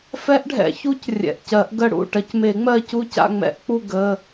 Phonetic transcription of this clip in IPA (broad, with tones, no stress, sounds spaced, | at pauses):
f ɛ˦˥ ʔ ɖʱ ɛ̰˨˩˦ ç u˦˥ c rʲ ɛ̰˩˧˩ ʔ c ɜ˨˩˦ ʔ ɡ ə˦˨ ɽ ṵ˩˧˩ ʈ ɐ˨˩˦ c m e˨˩˦ ŋ͡m ɜ˦˨ c u˦˨ c a̰˦˨ ŋ͡m ɛ̰˨˩˦ ʔ k͡p u˦˨ ɡ ə˩˧˩